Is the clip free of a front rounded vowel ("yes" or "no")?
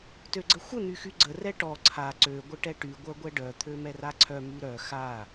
no